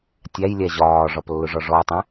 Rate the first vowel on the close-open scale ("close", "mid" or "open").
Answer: open